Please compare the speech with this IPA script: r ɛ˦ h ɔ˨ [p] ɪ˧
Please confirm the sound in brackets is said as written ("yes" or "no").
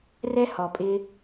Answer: no